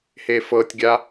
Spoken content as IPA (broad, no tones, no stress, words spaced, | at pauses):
hefɤtʲɡʲa